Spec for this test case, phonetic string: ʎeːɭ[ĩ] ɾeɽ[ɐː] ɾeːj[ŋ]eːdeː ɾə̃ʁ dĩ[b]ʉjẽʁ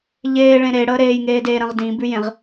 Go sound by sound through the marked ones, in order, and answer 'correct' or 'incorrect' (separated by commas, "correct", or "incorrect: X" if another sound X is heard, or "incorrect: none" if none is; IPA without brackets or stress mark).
incorrect: ẽ, incorrect: əː, correct, correct